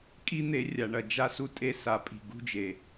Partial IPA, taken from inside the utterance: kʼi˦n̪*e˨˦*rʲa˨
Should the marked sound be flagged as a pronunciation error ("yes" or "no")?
no